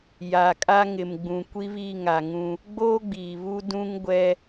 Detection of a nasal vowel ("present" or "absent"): present